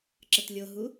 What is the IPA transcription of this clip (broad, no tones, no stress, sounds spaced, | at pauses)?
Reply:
ǁ ə t lʲ o ɦ u